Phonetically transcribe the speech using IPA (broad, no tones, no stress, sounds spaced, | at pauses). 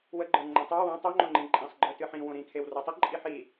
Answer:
w ə ɡ͡ǃ ə˞ ŋ͡ǃ ə̃ tˤ ə˞ w õ tˤ o ŋ͡ǃ õ ŋ͡ǃ ĩ ǃʼ ĩ sˤ ɡ͡ǃ ə˞ t ɨ ħ ĩ w õ ɾ ĩ kʰ e w r o tˤ ə ǃʼ i ħ i